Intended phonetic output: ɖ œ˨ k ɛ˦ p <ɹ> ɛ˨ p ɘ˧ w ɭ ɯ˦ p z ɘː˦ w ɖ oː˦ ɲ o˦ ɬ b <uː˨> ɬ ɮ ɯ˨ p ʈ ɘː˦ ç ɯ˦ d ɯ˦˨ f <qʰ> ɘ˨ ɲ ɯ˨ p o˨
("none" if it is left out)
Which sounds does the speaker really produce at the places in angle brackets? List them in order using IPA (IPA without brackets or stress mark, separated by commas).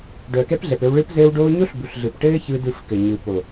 ɮ, u˨, k